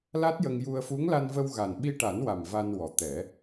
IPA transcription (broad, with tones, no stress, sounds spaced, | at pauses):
l a˦˥ t̚ j ə˧ ŋ j u˧ ə̯ f u˧˥ ŋ l a˧ n v ə˧ w ɣ a˨˩ n ɓ i˧ ʈ a˨˩˦ n w a˨˩ m v a˧ n w ɔ˨˩ t̪ ɛ˨˩˦